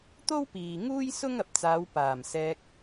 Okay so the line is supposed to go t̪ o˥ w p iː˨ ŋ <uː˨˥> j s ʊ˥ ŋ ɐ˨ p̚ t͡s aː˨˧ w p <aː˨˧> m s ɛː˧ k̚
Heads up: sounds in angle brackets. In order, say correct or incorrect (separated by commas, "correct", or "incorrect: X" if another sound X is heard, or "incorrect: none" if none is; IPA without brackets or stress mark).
incorrect: uː˥, incorrect: aː˨˩